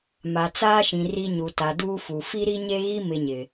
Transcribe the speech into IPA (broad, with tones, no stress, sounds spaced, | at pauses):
m a˨ t͡s aː˦ ʃ ĩ˨ r i˦ ɲ u˨ t a˨ d uː˦ f u˨ f i˦ ɾ i˦ ɲ e˦ ɣ i˦ m ɪ˦ ɲ ɪ˨